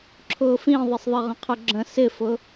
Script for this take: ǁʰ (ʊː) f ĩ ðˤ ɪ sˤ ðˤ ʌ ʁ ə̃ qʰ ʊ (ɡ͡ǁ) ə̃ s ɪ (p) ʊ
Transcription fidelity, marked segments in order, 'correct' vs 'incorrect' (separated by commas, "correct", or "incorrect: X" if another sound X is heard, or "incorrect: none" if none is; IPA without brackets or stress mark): correct, correct, incorrect: f